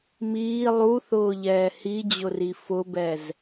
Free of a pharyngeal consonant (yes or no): yes